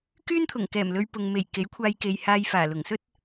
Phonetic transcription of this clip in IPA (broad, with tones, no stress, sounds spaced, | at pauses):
k yː˥ n t̪ʰ ʊ˨˩ ŋ k ɛː˨˩ m l ɵ˧ ɥ p ʊ˨ ŋ m e˨˩ j k e˨˥ j kʷʰ aː˧ j k e˨ j h aː˧ j f aː˨˩ l ʊ˨˩ ŋ s ɵ˥ t̚